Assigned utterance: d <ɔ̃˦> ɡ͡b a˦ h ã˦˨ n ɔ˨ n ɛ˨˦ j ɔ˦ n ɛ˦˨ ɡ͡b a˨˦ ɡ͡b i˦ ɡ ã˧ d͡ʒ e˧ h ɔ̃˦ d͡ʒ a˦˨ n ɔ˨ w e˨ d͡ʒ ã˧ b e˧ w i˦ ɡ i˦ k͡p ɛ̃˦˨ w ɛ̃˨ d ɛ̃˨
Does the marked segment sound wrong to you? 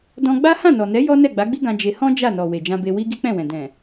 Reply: yes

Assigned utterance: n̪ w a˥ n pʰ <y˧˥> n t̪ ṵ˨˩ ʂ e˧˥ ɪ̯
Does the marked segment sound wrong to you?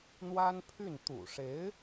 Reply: yes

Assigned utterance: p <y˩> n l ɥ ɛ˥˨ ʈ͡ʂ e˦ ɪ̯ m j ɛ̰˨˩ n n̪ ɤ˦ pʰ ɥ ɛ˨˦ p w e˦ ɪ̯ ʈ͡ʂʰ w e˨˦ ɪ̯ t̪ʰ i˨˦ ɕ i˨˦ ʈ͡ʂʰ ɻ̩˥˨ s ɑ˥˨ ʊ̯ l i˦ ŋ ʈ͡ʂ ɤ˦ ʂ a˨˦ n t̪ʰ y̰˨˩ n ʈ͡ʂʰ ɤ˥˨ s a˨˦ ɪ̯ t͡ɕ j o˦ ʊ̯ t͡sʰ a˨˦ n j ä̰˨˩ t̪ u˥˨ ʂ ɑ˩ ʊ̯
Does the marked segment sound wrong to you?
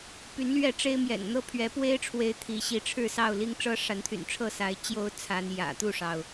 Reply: yes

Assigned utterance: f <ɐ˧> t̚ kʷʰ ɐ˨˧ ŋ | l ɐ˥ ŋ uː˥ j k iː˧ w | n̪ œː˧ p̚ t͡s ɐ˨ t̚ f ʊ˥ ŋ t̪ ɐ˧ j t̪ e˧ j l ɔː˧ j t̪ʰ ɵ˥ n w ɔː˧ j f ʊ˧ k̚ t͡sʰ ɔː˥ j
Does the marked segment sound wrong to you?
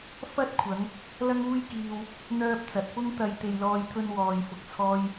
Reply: yes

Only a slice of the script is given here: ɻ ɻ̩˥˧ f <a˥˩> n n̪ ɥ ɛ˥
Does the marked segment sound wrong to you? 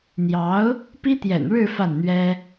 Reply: no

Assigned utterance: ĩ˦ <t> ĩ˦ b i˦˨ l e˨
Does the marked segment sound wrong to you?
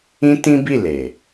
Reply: no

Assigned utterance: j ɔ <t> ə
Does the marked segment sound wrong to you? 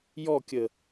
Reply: yes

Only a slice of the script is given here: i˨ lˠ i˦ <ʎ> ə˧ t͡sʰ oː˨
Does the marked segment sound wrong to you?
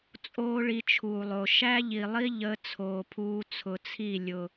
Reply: no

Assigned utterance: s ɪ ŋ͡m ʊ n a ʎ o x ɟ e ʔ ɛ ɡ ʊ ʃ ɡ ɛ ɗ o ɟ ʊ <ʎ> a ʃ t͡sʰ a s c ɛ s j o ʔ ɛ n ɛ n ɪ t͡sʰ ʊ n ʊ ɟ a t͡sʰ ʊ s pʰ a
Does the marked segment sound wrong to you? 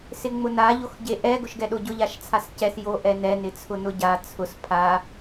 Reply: no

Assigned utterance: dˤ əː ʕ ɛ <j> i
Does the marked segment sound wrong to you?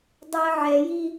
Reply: no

